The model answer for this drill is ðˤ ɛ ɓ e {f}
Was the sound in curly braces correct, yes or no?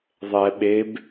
no